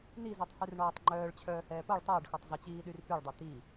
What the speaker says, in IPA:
n i z œ tˤ h y r ɳ ɔː tˤ ŋ͡ǃ œː ɭ t͡ɕʰ œː h ɛː p o ɭ tˤ əː ɖ x o tˤ z ə t͡ɕ iː ɗ y r p y ɭ dˤ ɛ t̪ i

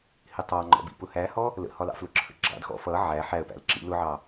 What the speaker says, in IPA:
h ɪ tˤ ɑ ŋ͡ǃ ɔ̰ b ḭ p ʊ h æ h ɔ | l ə̰ h ɒ l ɑ̰ f l ʊ ǁʰ ə̰ ɡ͡ǁ ɑ̰ d x ɔ̰ f ʌ ʕ æ ħ æ ə̯ p æ̰ l ǁ ḭ l ʊ ʕ ɑ

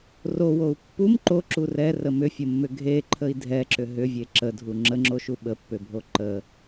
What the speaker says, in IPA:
r o w o u̯ pː u m ǃ o ǁ u r ɛ r ə m ʏ fʲ ə mː ʏ ɡʱ e ǃʰ ə i̯ dʱ ɛ ǁ ʏ ɦ ʏ vʲ e ǁ ə dʱ u ŋ͡ǁ ə ŋ͡ǁ o ʃ u ɓ ə pː ʏ bʱ o ǃ ə

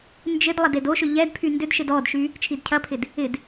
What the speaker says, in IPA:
n d͡ʒ ɪ d lˠ ɐ d e d o ʃ ʏ ʎ ɛ d pʰ y n d ʏ d ʃ ɪ d ɔ d ʃ y | t͡ʃʰ i d cʰ ɐ pʰ ɪ d | ɪ d

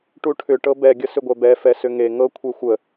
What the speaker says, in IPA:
ʈ u ʈʰ ʏ ʈ ɤ b ɛ ɡʲ ə s ʏ ɡʷ ɛ b ɛ f ɛ s ʏ ŋ e ŋ ɤ kʷʰ e xʷ ə

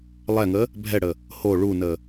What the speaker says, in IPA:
lˠ ɛ ŋ ə | bʱ ɛ ɽ ə | h o ɭ u n ə

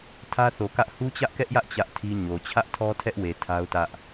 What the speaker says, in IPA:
tʰ ä˦ θ o˨ k ä˦ ʔ h u˦ t͡ɕ ä˦ ʔ k ɛ˦ ʔ j ä˦ ʔ t͡ɕ ä˦ ʔ tʰ i˦ ɲ o˨ t͡ɕʰ ä˦ ʔ tʰ ɔ˦ tʰ ɛ˦ ʔ w e˨ tʰ a˦ ʊ̯ t ä˦ ʔ

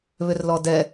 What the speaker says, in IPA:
β ʏ r l ɔ d ɛ

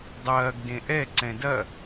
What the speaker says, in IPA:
dˤ ɐː ɡ d ẽ ʔ ɛ ǀ ɛ̃ d ɐ

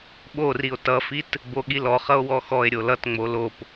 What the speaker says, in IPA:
ɓ o r i o̯ t ʌ f i t | b o ɠ i l ɔ χ ʌ o̯ w ɔ x ɔ e̯ ɾʲ o l ʌ t ŋ͡m o l o p

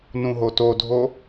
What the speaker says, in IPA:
n ũ ɦ o t o dʱ o

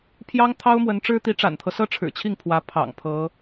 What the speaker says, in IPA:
pʰ j ɑ˥ ŋ t̪ʰ ɑ˥ ʊ̯ m w ə˧˥ n ʈ͡ʂ ɻ̩˥ t̪ i˧˥ ʈ͡ʂ a̰˨˩ n t̪ʰ ɤ˦ s ɤ˥ ʈ͡ʂʰ ɻ̩˨˩ t͡ɕʰ i˥˩ ŋ pʰ w ä˧˥ pʰ ɑ̰˨˩ ŋ pʰ ɤ˧˥

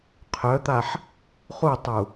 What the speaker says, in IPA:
qʰ œ t̪ a ħ | χ u tˤ u

